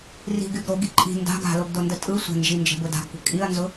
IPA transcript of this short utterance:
ri̤ɡyɡ ɾoɡi ǃʼi̤ nda̤ɡ a̤loɡdondə tʼɯ sʷə̤nd͡ʒind͡ʒə̤bʊ da̤ɡkʷə̤ kʼiɐ̯nzʊ

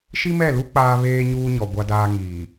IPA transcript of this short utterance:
ʃi˦mɛ˦˨lu˦ k͡paː˦βeː˦ ɲuː˦ɲɔ˨ ɡʷa˦daː˦ ŋiː˨

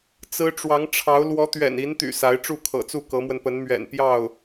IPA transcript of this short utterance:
t͡sɹ̩˥ ʈ͡ʂwɑ˧˥ŋʈ͡ʂʰɑ˧˥ʊ̯ lwɔ˧˥t̪ɥɛ̰˨˩ni˧˥nt̪y̰˨˩ sa˧˥ɪ̯ʈ͡ʂu˥˩kʰɤ̰˨˩t͡su˥˩ kɤ˧˥mwə˧npə˧˥nmɥɛ̰˨˩n pjɑ˥˩ʊ̯

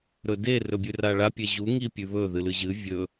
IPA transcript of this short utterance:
ɾɵde rɵbʲʉraɭa pʲeʑu ŋipʲʉβɵ ðɨlɨʑɨ vʲɵ

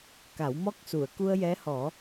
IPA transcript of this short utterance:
ka˨˩˦wmɔ˦˥k̚ su˨˩˨ə̯ku˧ə̯jɛ˧˥hɔ˨˩˦

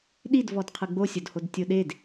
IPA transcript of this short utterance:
ɗidvɔd qʰɯɡ͡bosʲodhod tʲoɗed

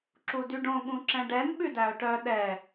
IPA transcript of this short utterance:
ǁudyɖõ ɠũǁɛ̃ɖɛn ɓʉdæo̯ʈœ ɗɛ

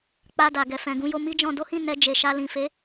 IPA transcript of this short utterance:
k͡pa˧da˨ɡɛ˨ fɛ̃˨ɡũ˧ jo˧mi˦d͡ʒɔ̃˧ do˦hĩ˦˨ nɛ˧ d͡ʒe˨ʃa˧lĩ˨ fe˨˦

